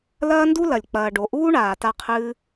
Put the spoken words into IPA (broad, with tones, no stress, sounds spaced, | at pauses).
l ɐː˦ n d u˦ l ɐ˨ lʲ k͡p ɐː˨ ɖ o˨ ʔ uː˦ ɳ aː˨ t a˧ qʰ ɨː˧